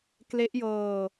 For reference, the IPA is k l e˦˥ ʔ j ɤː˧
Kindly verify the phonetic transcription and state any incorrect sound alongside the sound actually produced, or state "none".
none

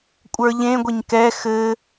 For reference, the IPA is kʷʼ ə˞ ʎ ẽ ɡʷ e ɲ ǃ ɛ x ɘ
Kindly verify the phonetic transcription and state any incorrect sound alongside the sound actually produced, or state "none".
ǃ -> k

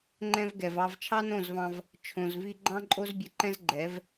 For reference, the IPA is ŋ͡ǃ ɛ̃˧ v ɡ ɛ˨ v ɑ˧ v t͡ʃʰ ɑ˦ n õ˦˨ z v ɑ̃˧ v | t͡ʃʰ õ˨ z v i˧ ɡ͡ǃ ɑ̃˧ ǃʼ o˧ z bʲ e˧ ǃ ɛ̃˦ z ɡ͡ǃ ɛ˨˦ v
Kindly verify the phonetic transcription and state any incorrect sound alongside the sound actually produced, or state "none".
none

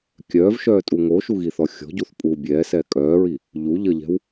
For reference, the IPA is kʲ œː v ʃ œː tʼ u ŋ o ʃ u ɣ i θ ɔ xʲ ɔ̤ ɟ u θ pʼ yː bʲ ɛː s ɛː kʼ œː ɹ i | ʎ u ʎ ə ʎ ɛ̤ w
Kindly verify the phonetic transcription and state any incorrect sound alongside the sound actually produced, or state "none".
yː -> uː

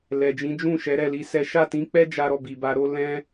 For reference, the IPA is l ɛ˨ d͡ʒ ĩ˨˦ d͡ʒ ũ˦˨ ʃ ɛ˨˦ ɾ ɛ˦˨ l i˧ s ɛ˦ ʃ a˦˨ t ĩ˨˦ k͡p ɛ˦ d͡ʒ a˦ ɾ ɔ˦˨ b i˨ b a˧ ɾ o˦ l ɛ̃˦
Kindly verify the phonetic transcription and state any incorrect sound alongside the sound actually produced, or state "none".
none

